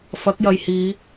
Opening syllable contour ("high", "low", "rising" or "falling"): rising